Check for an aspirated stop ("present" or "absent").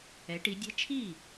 present